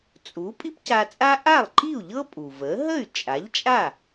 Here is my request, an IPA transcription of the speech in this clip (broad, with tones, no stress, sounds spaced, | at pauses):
t͡sʼ u˩˥ pʼ i˥ p c a˧ t͡sʼ a˥ ʔ a˥˩ lˠ ǃ i˥˩ u̯ ʎ ɤ˥ pʼ u˩ v ə˩˥ ɦ ə˥˩ y̯ t͡ʃʼ a˩˥ ʎ t͡ʃʼ a˥˩